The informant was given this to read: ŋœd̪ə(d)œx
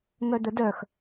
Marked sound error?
no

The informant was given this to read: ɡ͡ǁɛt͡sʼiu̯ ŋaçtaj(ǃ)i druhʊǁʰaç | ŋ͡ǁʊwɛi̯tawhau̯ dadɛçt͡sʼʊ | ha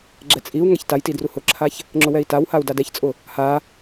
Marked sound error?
yes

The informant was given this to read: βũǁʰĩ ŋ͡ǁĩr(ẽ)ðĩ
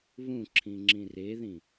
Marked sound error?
yes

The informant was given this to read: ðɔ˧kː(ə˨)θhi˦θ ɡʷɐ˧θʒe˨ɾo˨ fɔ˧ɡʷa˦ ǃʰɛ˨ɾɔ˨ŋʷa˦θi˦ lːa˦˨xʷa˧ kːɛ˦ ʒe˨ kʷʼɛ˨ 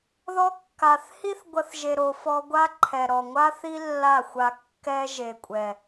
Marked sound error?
yes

